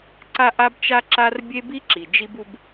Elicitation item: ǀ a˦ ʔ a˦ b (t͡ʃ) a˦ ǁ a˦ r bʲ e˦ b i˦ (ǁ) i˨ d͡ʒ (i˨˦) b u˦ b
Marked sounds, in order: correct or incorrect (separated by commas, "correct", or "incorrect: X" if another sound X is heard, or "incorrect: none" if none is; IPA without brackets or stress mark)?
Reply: correct, correct, incorrect: i˦